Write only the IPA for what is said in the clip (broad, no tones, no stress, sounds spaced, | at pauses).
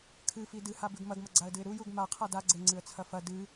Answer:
kʰ ɨ f i d ɨ h a b ʉ ɡ m ɐ ɡ m ɐ ɡ͡ǀ a ə̯ d ɨ ɪ̯ ɾ u j u ɡ m a qʰ a d a ɡ͡ǀ e ŋ͡ǀ ɨ ə̯ t͡sʰ ɐ f ɐ d ɨ